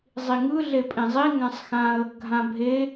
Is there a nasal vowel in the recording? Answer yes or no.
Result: yes